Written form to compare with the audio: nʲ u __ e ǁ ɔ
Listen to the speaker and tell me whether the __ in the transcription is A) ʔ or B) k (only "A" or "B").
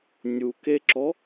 B